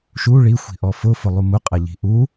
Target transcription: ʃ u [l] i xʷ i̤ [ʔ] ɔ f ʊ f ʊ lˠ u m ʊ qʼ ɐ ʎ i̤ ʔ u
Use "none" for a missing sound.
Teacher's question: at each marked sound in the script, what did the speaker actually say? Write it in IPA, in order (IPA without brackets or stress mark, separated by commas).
ɭ, ʔ